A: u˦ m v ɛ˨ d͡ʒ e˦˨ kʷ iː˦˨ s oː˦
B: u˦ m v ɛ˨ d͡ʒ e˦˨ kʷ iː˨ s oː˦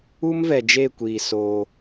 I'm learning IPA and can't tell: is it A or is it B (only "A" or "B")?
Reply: B